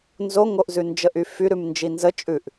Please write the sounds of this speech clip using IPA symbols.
nzoŋoʔzʉ nd͡ʒəʔyfy ɾʉmnd͡ʒinzə t͡ʃʼʉʔ

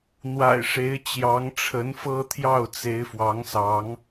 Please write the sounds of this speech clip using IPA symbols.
n̪wa̰˨˩ɪ̯ʂe˨˦ɪ̯ t͡ɕjɑ˨˦ŋʈ͡ʂʰə˨˦nfɤ˦t̪ʰjɑ˥˨ʊ̯ t͡se˨˦ɪ̯fwɑ˨˦ŋsɑ˨˦ŋ

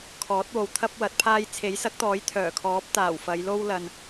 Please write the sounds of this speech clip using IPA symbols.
kʰɔː˨˥t̚wo˨wt̪ʰɐ˥p̚wɐ˨˥t̚ pʰaː˧jt͡sʰe˨˥jsɐ˨˥k̚t̪ɔː˨˥j t̪ʰœː˨˩kʰɔː˨˥p̚ t̪aː˨˩wfɐ˨˧jlo˥w lɐ˧n

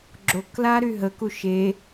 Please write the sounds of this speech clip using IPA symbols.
ɡ͡ǁokla ɾyɦəku ʃe

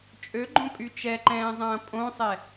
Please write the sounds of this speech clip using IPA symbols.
t͡ʃʼøɡ͡ǃõpʼy t͡ʃɛǃɛ̃ːzˤɐ̃ː pʼõsˤɛ

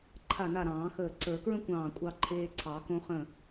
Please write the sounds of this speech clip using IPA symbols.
ǃʰa˧˩na˧˩ ɾɑ̃ː˨˩˦xəː˧˩ ǀə˞˨˩˦kɹə̃˥kʷɑ̃ː˧˩ kʷʼɑ˧ǃʰeː˧ǀʰɑ˨˩˦ kõ˧χə̃˧˩

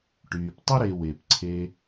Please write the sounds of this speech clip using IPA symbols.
ʈyː˩ptˤə˥ɾe˨we˩p ǀʰe˨

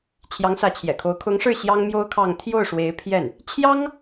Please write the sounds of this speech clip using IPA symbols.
t͡ɕʰjɑ˧˥ŋsä˧˥t͡ɕʰjɛ̰˨˩kʰo˧˥ʊ̯ kʰʊ˧˥ŋʂɻ̩˥˩ ɕjɑ˥ŋmjo˥ʊ̯kʰɑ˥˧ŋ t̪ʰjo˥˩ʊ̯ʂwe˧˥ɪ̯pʰjɛ˥˩n | t͡ɕʰjɑ˥ŋ

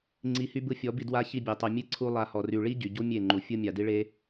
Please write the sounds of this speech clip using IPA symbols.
ŋ͡ǀi˧hy˦bɯ˦ fʲɔ˨˦bi˧ dwa˧ çi˧bʲe˨tˤy˨ mʲe˦ǀʰu˧ lˠa˧hɔ˨ ry˨ɭi˦ ɟy˨ ɟu˦mʲe˦˨ ŋ͡ǃu˨ fʲɯ˦ mʲa˨di˦ɭe˦

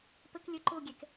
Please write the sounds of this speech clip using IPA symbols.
pək lʲə ǃoɡʲɛk

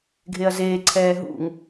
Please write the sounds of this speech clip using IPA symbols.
ɡʱeɐ̯zeːǀʰɛː ɦṵŋ

